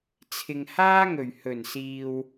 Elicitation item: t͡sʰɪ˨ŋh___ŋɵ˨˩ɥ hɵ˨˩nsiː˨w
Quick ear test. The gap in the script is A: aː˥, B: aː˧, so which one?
A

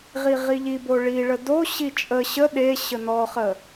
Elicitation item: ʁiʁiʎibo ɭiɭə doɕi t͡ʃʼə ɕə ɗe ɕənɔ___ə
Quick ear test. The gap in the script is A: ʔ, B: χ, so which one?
B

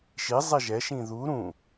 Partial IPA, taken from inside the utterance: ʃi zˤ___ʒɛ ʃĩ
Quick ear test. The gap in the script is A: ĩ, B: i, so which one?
B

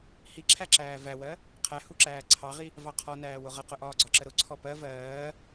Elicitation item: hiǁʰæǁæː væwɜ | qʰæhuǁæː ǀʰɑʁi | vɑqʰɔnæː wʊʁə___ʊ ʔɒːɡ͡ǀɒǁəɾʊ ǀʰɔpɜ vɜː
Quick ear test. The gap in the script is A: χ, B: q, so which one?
B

